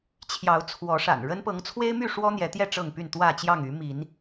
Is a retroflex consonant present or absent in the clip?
present